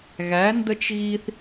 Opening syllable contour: rising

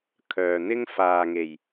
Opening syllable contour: low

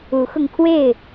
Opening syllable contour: rising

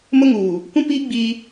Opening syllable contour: high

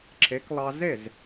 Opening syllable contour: rising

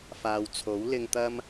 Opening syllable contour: low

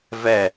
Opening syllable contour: falling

